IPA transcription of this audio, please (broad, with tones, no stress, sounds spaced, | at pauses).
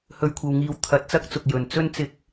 h ɵ˧ ɥ kʷʰ ɐ˧ w ŋ iː˧ w t̪ʰ ɐ˨˥ t̚ t͡s ɐ˥ k̚ t͡s ʊ˨ k̚ j ɵ˨ n t͡s ɵ˥ n t͡s ɪ˧ k̚